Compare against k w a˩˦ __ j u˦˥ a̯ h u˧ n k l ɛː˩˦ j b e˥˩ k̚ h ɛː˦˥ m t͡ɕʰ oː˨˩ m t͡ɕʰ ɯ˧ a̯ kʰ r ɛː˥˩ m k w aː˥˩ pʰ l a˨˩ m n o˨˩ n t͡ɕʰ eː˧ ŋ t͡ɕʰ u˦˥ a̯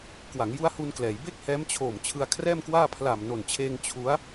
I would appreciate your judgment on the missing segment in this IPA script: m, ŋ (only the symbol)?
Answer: ŋ